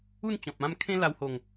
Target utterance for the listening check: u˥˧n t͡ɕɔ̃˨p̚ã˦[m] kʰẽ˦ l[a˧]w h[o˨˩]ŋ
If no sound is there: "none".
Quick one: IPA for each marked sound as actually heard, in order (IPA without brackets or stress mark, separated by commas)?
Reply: m, a˧, o˨˩